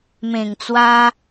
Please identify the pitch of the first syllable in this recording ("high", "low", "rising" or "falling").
low